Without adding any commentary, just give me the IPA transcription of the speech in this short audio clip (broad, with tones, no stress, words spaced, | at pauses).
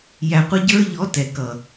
jæ˨qʷə˧ɟə˞˧ʎɔ˨˦ tɛ˨kʌ˨